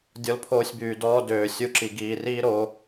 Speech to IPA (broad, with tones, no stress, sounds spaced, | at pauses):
dʲ ɔ˧ l pʰ oː˧ sʲ b yː˨ d ɔː˦ d øː˨ sʲ u˧ ǁ i˨ ɡ iː˨ r iː˦ ɾ oː˧